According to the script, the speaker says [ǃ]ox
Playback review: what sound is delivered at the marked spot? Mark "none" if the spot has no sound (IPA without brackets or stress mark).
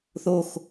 θ